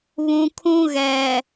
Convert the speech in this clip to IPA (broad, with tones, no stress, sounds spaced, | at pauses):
β ũ˨ kʰ ũ˦ ɣ ɛ˨